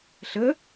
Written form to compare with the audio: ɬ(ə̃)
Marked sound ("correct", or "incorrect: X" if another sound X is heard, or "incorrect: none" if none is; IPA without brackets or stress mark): incorrect: ə